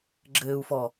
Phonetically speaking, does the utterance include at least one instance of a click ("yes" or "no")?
yes